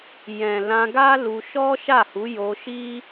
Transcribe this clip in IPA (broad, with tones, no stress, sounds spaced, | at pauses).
j ɛ̃˨ l ã˧ ɡ a˦ l u˧ ʃ ɔ˦ ʃ a˦˨ h u˨˦ j o˧ ʃ i˦